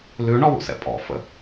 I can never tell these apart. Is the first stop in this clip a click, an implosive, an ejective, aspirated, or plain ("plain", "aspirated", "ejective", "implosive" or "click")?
ejective